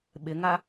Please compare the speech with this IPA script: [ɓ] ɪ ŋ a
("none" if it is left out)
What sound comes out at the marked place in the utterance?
ɓ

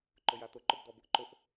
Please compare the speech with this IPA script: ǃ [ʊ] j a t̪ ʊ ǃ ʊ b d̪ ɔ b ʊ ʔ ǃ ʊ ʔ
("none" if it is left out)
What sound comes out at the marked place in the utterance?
ʊ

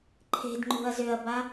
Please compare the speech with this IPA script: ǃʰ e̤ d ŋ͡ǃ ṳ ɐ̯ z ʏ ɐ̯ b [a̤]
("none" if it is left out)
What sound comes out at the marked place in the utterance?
a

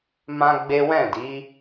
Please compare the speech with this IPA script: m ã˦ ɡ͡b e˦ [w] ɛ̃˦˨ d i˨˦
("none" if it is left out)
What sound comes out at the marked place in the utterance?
w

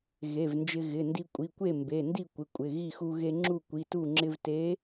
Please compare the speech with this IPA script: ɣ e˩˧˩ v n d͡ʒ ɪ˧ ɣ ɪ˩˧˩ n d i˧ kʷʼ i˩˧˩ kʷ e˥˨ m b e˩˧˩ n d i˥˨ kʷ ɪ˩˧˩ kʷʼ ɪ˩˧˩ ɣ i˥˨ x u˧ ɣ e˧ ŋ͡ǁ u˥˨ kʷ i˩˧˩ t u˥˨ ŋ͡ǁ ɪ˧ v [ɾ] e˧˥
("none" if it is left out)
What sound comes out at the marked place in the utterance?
t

